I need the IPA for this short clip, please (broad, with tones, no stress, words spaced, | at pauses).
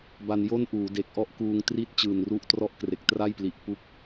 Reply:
ba˧n jo˥˩nʔuː˩˦de˨˩k̚ʔɔ˥˩ʔ kuː˧ŋ tri˥˩t̚ t͡ɕɯː˨˩nru˦˥ʔtrɔ˥˩ʔ kre˨˩k̚tra˥˩jpli˨˩ʔ pu˦˥k̚